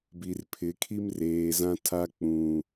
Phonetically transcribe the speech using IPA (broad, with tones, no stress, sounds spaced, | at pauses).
b i˨ r pʰ ɪ˨˦ kʰ i˦ m r eː˨ z ã˦ tʰ a˦ k͡p ũ˨